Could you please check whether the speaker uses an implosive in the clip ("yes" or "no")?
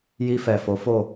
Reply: no